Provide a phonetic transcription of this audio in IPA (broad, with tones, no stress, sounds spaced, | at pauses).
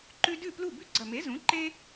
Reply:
ǃ ʉ˦ d ʉ˥˩ p l u˥˩ b ʉ˦ ɡ͡ǀ ɐ˨˩ m e˩˥ z ũ˩˥ ǃ e˦